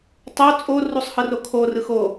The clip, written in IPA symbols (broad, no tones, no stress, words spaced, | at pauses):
tˤo t͡sʼo rusˤhɯrokʰo rɯxo